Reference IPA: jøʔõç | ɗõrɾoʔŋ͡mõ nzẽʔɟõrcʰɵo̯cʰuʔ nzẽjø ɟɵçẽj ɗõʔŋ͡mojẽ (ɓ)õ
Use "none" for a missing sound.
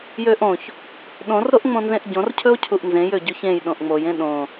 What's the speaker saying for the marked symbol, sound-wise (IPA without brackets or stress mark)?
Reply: ɗ